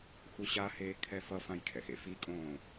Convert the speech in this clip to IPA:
x u ɕ a h eː kʰ ɛ f ʌ f ã j kʰ ɛ̰ x ḛ f i kʼ õː

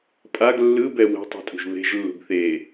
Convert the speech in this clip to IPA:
pʼ a ɡ lː ɯ b ɛ w ɛ̤ tˤ ṳ tʼ ṳ ʒ β e̤ ʒ lː ṳ ɡ θ e

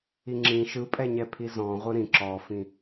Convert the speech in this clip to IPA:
i ŋ͡ǁ ĩ ʃ ɯ pʼ ɛ ɲ ɛ pʰ i z ɔ̃ ʁʷ ɯ ɾ ĩ ǁ ɔ f ĩ

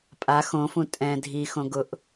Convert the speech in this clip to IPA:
pʼ a x õ f ũ tʼ ɛ̃ dʱ i x õ ɡ ʊ ʔ

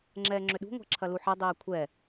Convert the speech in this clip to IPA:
ŋ͡ǁ ɛː ŋ͡ǁ ʏ ɗ ṳ ŋʷ ɛ̤ ǁʰ ɐ l u ħ ɐ dˤ ɛː kʷʰ ɛ

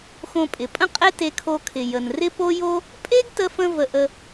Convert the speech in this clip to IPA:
x õ˧ pʼ ɪ˩ pʼ ə̃˥ qʼ e˥ t e˧ kʰ o˧ kʰ ɪ˩ j ə˩ n r ɪ˥ p o˥ j o˥ | pʼ e˥ ɡ t ə˧ f ə̃˧ v ə˧ ʔ ə˧

